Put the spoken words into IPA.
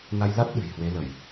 na˧jla˦˥t̚ ɗɨ̤˨˩jhwe˨˦lə˧˩˨j

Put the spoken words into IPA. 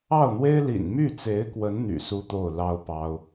ɑ˥˩ʊ̯n̪we˥ɪ̯lḭ˨˩n my˥˩t͡se˧˥ɪ̯kwə˧˥n n̪y̰˨˩su˥t̪o˥˩ʊ̯ lɑ˥ʊ̯pɑ˥ʊ̯

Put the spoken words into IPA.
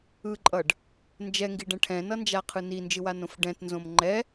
ɯǃʼʌɖ | nd͡ʒɛŋɡiɖɛ̃ ʈʰɛ̃nʌnd͡ʒaqʰɯ nind͡ʒɯwanõf ɖɛ̃tnzõm ŋ͡ǃɛ

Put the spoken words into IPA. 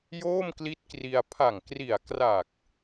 joː˥˩mkli˦˥t̚kri˧a̯ pʰa˨˩ŋkri˨˩a̯ kra˨˩k̚

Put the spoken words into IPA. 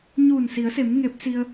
ɲuː˧˩nsi˩˧ə̯se˩˧m ŋe˧˥p̚si˧ə̯

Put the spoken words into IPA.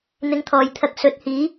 n̪ɪ˨˧ŋt̪ʰɔː˨jt̪ʰɐ˧k̚ sɵ˨˥t̚hiː˨˥

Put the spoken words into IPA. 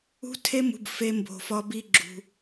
ṳ˦tʰe˦mṳ˧b fe˦mbo̤˧fɒ˦bi˦ ɡ͡ǁṳ˧

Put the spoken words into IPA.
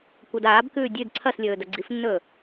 kʷɐdaːbkʉː dʲʉd ǀʰɐslʲɵː dɐɡ͡ǀifnːɵː

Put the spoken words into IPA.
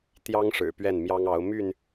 t̪jɑ˦ŋ ʂɻ̩˨˩pɥɛ˥˨nmjɑ˦ŋɑ˨˦ʊ̯ my˥˨n

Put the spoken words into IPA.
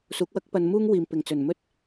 suː˨˥k̚wɐ˥k̚pɐ˧n muː˥ŋwiː˨m pɪ˨˩ŋt͡sɵ˨˩n mɵ˧t̚

